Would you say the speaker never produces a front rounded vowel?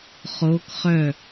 no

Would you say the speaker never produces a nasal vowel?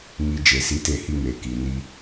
yes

